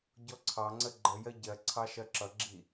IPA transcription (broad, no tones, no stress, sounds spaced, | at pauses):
ɟ ɔ ǀʰ ɑ ŋ͡ǀ ə ɡ͡ǃ ə j ɜ ɟ ɜ ǀʰ ɑ ʃ ɜ ǁ ʌ ɡ͡ǁ i